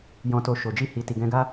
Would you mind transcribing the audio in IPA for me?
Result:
j ɔ̃˨ t o˨ ʃ o˨ d͡ʒ i˧ h i˨ t i˨ ɡ ɛ̃˧ ɡ a˦

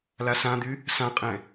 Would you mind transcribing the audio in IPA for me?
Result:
l a s ã d̪ y | s ã qʼ ɛ̃

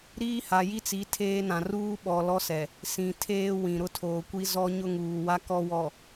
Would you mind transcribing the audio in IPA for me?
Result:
ɾ iː˦ h a˨ j i˦ t͡s i˨˦ tʰ eː˦ n ã˨ r uː˦ ɓ ɔ˨ l ɔ˦ s ɛ˨ | s ĩ˨ tʰ eː˦ w ĩ˨ ɾ ʊ˦ tʰ oː˨ kʷ i˦ z ɔ˦ ɲ ʊ˦ ŋ uː˨ w a˦ k ɔ˦ w ɔ˨

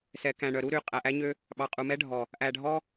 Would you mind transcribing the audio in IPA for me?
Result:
s ɛ˨ k æ̃˨ ɳ œ˨ ɾ u˦ ɾ y˨ qʼ æ˨ ʔ æ˦ ɲ ø˦ | ɓ ɑ˨ qʼ u˨ m ɛ˦ ɖʱ ɔ˨ | ʔ æ˨ ɖʱ ɔ˦

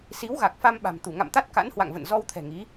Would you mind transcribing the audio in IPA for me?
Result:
s i˨˦ w ɣ a˨˩ k̚ f a˧ m ɓ a̤˨˩ m t̪ u˧˩ ŋ a̰˧˨ m t̪ a˦˥ t̚ k a̰˧˥ n h w a̰˧˨ ŋ v ə̰˧˨ n z ɔ˧ w t̪ʰ ɛ̤˨˩ ŋ i˨˦

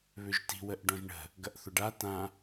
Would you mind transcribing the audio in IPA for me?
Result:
β ʏ ʒ t i̤ w ə ʔ ɖ ɔ̃ ʒ ɳ ə̤ | ɡ ɐ ʔ θ ʊ ɖ a t ã

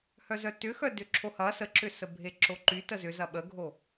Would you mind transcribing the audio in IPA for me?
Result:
h œ z œ t ʏ x œ d ʏ ǁʰ o h ɐ s ə ǁ ʏ s ə bʱ e ǁ o ǃ y t ə z ʏ z ɐ ɓ ə ɡʱ o

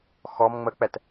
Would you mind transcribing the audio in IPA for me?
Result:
x ɔ m ŋ͡m ə k͡p ɛ t

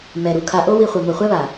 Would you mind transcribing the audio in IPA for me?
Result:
m ɛ˨ ɾ u˨ kʰ a˧ ʔ o˦ w i˧ χʷ ɯ˨ m o˨ χʷ ɛ˦ β a˨

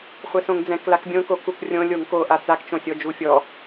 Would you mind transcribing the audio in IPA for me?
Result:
χʷ ɛ s õ ŋ d͡z ɛ̃ k l a k bʲ õ k o k u k rʲ õ lʲ o ŋ k o ʔ a t͡s a k t͡ʃ õ sʲ ɔ d͡ʒ u fʲ ɔ

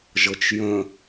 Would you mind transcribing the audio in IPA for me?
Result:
ʒ ɤ t͡ʃ j ə̃

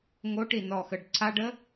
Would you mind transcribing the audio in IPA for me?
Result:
ŋ o ʈ i n ɔ x ə ɖ ǀʰ a ɖ ə

